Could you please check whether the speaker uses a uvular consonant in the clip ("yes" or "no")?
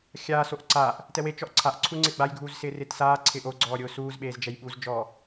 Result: no